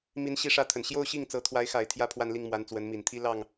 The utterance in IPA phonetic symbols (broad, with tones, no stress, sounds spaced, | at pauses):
m i˧˥ n ɕ i˧˥ ʂ ä˧˥ t̪ʰ ə˨˩ n ɕ j o˥˧ ʊ̯ ɕ i˥˩ ŋ t͡s ɤ˧˥ t̪ʰ w a˧˥ ɪ̯ x a˨˩ ɪ̯ t̪ʰ j ä˥ pʰ w a˥˧ n l i˥˩ ŋ m w a˧˥ n t͡s w ə˧˥ n m i˨˩ n t̪ʰ i˥ l ɑ˥˩ ŋ